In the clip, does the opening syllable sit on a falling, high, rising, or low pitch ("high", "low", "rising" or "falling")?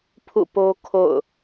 falling